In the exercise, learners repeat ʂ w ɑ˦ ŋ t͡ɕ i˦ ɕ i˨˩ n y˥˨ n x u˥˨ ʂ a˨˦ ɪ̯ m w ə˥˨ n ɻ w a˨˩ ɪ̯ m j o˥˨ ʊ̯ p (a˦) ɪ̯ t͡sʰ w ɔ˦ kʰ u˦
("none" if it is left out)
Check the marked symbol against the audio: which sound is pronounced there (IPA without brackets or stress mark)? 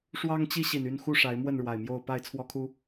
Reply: a˥˨